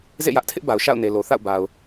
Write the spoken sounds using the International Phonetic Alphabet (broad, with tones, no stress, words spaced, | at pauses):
zḛ˦˨jä˦ʔtʰɪ˦ʔba˨ʊ̯ ʃa̰˦˨ʊ̯ne˨lo˨ θa̰˦˨ʊ̯ba˨ʊ̯